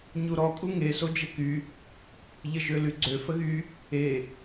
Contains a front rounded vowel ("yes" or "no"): yes